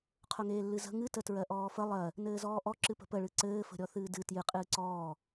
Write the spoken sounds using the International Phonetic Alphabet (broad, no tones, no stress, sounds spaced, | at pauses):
qʰ ʊ ŋ eː lː ɨ z ə̤ ŋ ɨ t ə t ɹ ɜ ʔ ɔː f ə lˠ ɜ | n ɘː z ɔː ʔ ɔ ǁ ɨ p ə̤ p ə ɭ ɨ ǀ ɘː f ə̤ ɾʲ ɔ θ ɨː d ɨ t j ɨ qʼ ɨː ǀ ɔː